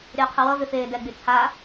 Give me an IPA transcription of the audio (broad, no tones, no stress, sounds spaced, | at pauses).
ɾʲ ʌː qʰ ə w ʌ v ʏ f eː d ɛ ɡ͡b y t͡sʰ a